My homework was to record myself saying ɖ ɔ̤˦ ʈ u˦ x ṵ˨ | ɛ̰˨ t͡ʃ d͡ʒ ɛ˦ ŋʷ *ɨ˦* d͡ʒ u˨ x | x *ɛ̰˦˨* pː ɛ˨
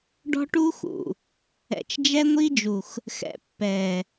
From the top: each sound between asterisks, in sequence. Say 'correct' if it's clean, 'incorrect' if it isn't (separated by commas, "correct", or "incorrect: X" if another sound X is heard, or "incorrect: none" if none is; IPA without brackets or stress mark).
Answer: incorrect: i˦, incorrect: ɛ̰˨